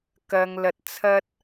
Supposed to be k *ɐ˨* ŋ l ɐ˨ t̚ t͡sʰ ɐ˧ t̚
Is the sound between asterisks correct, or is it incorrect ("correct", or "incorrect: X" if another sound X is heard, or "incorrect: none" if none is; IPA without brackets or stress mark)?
correct